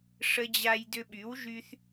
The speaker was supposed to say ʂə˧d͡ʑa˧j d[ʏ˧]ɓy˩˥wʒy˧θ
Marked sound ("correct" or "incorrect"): correct